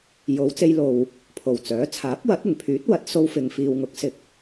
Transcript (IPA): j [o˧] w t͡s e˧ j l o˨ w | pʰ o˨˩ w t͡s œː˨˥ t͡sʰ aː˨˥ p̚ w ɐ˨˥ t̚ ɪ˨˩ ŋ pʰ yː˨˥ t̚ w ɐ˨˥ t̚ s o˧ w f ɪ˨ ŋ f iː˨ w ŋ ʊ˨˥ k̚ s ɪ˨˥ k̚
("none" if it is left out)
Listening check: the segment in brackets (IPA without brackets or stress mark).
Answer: o˨˧